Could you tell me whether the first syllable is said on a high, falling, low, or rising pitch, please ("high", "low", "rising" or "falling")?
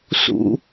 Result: high